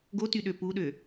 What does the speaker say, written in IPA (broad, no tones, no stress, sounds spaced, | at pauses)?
ɡ o t y ɗ ø p u ɗ ø